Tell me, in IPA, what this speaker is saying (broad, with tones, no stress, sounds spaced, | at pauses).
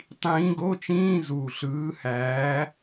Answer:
tˤ ĩː˨˦ ɡ o˧˥˧ t͡ʃ ĩː˧˥˧ z uː˨˩ ɬ ɯː˨˦ h æː˨˦